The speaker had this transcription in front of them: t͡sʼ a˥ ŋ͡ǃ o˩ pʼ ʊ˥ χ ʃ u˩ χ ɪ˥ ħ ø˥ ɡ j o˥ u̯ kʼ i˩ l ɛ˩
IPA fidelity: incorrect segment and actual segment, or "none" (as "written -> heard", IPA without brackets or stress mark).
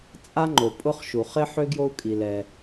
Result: none